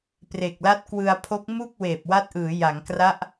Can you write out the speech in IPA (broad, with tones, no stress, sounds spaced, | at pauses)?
p r e˨˩ k̚ l a˦˥ t̚ k w ɯ˧ a̯ pʰ o˦˥ k̚ m u˥˩ k̚ w eː˨˩ p̚ w a˦˥ t̚ ʔ ɯː˩˦ j a˩˦ ŋ k r a˦˥ ʔ